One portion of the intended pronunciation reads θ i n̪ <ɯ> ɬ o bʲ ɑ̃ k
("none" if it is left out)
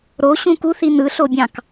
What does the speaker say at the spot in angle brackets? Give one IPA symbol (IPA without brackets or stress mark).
ɯ